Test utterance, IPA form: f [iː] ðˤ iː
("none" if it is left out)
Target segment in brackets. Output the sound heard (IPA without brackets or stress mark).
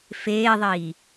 eː